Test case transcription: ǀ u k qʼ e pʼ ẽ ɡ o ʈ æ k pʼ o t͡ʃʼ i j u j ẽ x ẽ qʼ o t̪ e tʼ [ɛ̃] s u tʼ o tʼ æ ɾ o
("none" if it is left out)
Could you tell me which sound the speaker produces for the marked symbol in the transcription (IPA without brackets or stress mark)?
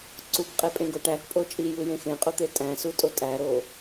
æ̃